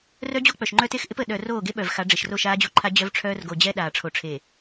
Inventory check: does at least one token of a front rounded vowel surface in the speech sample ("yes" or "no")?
yes